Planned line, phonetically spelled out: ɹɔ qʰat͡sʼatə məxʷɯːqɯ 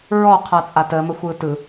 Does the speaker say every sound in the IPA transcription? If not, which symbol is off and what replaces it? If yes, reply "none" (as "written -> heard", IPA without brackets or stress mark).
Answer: q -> t